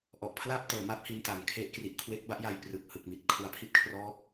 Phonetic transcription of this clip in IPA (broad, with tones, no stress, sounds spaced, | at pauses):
ʔ ɔ˨˩ ʔ pʰ l aː˥˩ p̚ t ɤː˩˦ m a˦˥ p̚ h i˧ n t a˨˩ ŋ kʰ e˦˥ ʔ k r i˨˩ ʔ kʰ w e˦˥ k̚ b a˦˥ ʔ j a˧ j p r ɯ˨˩ k̚ h ɯ˨˩ k̚ m i˨˩ t̚ kʰ u˨˩ a̯ pʰ i˦˥ t̚ kʰ r ɔː˦˥ k̚